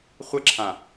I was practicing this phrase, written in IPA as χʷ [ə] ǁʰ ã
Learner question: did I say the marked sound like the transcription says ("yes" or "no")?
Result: yes